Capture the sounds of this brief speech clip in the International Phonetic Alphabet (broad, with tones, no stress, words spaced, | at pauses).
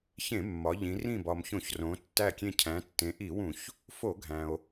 çẽ˧˩˧mːɒ˩˧ ʎĩ˩˧ rĩ˧˩bɒ˩m çõ˧˩˧çrõ˩˧ tːæ˧˩kʲẽ˧˩ cʰæ̃˩˧tːẽ˩˧ʔi˧˩˧wũ˧˩˧ç | fo˧˩˧ɡʱæ̃˩o̯